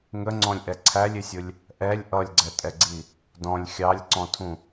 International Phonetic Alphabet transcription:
ŋəŋ͡ǀɔ̃lʲʔɛ ǀʰælʲɪsʲʊlʲ | ʔɛlʲ ʔʌlʲɡ͡ǀɛtʼɛɡ͡ǀi | dɔ̃lʲ xʲɑlʲǀɔ̃tʰũ

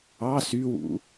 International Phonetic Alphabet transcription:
ɑ sywṵ

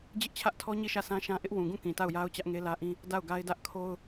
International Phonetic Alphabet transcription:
d͡ʑɪ˦ʔt͡ɕʰä˦ʔtʰɔ˦ ɲi˦˨ʃä˦˨sʰã˦ʃã˦ ʔɪ˦ʔwũ˨ɡũ˦˨ kĩ˨ta˦˨ʊ̯ja˦ʊ̯ t͡ɕä˦ʔŋe˦lä˦ʔĩ˦ | da˦˨ʊ̯ɡa˦ɪ̯dä˦ʔ kʰo˦ʊ̯

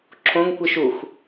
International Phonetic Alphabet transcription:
ǁʰõŋkʷiʃ ux

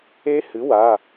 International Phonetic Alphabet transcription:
e˦˥hɨ˩˥ wa˩˧˩

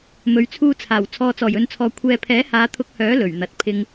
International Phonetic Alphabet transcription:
mɵ˨ɥt͡sʰuː˧t͡sʰaː˨˩w t͡sʰɔː˨t͡sɔː˨˩jɵ˨nt͡sʰɔː˨ kʷʰɛː˧ pʰɛː˨˥haː˨˧t̪ʰʊ˧k̚hœː˨˥ lɵ˨˩ɥn̪ɐ˨t̚ pʰɪ˧ŋ

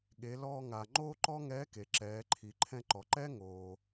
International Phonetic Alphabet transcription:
ɠe˩˧ lɔː˧ŋa˩ŋ͡ǃoː˥ ǃɔ˥ŋɛː˧˥ke˩ ǁɛː˩˧ǃʰi˩ ǃʰɛ̃˧ǃɔ˩ǃɛ˥ ŋoː˩

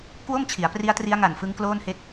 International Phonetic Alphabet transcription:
kwo˥˩mt͡ɕʰi˩˦a̯pri˦˥a̯tri˦˥a̯ ŋa˨˩nfɯ˦˥ŋ kloː˥˩nhe˥˩k̚

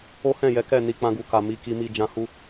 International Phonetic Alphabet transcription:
o˦hɛ̃˦˨ jɛ˨˦kɛ˦˨ ni˨˦ k͡pã˧ɡu˨ka˨ mi˨˦ki˧mi˧ d͡ʒã˧hu˧

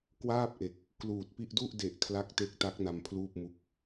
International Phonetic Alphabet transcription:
kwaː˥˩p̚ʔe˨˩k̚ | kluː˨˩t̚pi˥˩ʔ du˥˩ʔde˨˩ʔ kʰla˦˥k̚te˦˥k̚ta˦˥k̚ na˧mpʰluː˥˩p̚mu˦˥k̚

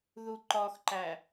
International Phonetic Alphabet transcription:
ðuǃɒxǃæ

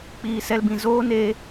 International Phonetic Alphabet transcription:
k͡piː˧sɛ˦lbĩ˧ zoː˦ne˧

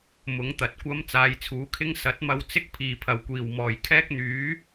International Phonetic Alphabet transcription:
mʊ˨˥ŋt̪ɐ˨˥t̚kʷɐ˥m t͡saː˨˧jt͡sʰuː˨˥kʰɪ˥ŋ sɐ˨˥t̚mɐ˧w t͡sɪ˥k̚pʰiː˨˩pʰɐ˨˩w kʷiː˨˩wmɔː˨˩j kʰɛː˥k̚n̪yː˨˥

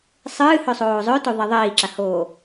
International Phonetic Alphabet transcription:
sˤɨːhɵsˤoː zˤɵtoðˤe ðˤiːǁahoː

